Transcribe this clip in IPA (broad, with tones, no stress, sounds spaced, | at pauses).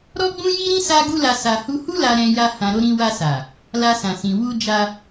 ɾ ɔ˦ ɡ͡b ũ˦ j i˦ ɾ ĩ˦ s a˦ ɡ u˦ l a˧ s a˨ h u˧ h u˦ l a˧ ɾ ɛ̃˧ j a˧ h ã˨ ɾ o˧ ɾ ĩ˧ w a˧ s a˨ | l a˧ s ã˨ s ĩ˨ w u˧ d͡ʒ a˧